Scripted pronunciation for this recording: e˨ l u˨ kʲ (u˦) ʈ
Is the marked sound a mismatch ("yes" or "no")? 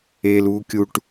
yes